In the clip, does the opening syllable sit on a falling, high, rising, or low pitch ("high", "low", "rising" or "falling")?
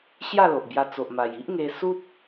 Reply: falling